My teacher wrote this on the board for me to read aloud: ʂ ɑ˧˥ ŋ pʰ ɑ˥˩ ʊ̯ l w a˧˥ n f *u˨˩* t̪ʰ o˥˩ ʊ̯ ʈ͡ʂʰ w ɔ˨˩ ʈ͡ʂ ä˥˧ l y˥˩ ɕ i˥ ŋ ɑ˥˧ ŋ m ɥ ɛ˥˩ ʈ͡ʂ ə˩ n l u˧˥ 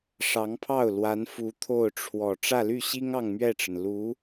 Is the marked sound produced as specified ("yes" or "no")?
no